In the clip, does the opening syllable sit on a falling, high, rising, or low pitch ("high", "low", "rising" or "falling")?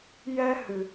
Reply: high